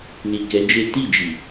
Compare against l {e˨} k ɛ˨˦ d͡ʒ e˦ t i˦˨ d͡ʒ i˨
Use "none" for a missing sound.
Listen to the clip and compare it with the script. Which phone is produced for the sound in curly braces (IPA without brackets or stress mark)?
i˨